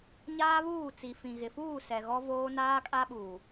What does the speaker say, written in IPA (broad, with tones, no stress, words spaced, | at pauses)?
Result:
ɲaː˦βuː˦˨ t͡si˨fĩ˨ɣɪ˨ fuː˦˨ sɛ˨ɣɔ˦voː˦ naː˦kʼa˦ ɓuː˨